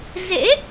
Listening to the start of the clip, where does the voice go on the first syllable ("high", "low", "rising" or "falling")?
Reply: rising